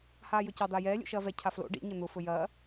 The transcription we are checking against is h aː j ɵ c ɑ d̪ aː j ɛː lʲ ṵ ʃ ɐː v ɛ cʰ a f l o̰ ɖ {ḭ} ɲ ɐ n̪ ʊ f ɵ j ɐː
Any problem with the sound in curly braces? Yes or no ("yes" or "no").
no